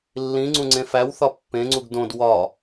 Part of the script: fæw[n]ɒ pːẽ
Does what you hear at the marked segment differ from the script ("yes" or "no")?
yes